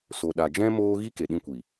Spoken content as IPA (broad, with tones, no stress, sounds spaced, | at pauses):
s o˨ ɗ a˨ d͡ʒ ɛ̃˦ m oː˦ ɣ i˦ k e˨ ɗ ĩ˧ kʷ i˨